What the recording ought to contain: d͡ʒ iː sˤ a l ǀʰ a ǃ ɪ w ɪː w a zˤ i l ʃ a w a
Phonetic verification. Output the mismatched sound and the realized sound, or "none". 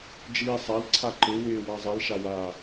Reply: none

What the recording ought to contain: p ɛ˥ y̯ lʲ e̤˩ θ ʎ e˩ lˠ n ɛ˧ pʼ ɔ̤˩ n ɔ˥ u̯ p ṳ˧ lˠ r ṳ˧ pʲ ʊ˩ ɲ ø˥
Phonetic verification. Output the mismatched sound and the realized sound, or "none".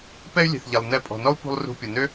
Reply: ɲ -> n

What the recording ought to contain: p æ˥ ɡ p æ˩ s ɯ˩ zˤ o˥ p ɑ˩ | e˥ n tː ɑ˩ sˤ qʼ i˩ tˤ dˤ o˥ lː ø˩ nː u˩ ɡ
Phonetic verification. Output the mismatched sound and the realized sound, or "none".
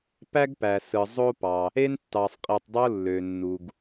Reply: none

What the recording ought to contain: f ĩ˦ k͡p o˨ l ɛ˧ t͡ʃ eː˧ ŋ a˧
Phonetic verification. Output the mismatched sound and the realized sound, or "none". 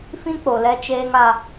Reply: none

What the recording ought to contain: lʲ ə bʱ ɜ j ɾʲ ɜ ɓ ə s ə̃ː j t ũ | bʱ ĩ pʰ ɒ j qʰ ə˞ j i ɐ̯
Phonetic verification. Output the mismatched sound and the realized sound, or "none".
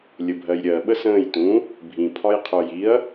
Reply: none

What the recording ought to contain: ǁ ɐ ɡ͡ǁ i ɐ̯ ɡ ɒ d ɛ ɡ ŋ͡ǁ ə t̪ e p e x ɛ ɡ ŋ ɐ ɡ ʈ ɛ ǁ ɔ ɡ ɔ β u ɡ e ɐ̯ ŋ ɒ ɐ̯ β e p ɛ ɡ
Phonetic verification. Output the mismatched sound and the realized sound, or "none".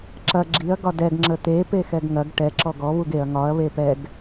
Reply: none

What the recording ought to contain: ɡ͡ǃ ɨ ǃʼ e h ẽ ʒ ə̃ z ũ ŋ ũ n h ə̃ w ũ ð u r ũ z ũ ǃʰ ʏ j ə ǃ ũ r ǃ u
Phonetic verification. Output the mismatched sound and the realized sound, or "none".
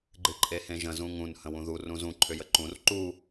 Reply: none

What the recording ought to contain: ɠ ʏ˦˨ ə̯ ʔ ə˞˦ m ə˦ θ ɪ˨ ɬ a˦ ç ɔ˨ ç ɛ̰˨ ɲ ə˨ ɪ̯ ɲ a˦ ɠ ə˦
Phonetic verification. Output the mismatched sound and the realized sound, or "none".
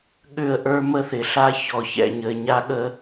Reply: none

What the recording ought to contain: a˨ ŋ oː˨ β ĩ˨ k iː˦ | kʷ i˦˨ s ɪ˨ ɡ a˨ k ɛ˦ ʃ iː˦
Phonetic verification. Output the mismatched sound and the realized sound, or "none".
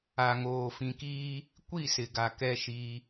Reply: β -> f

